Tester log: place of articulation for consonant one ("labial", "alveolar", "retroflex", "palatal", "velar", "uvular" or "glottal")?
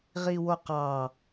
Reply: uvular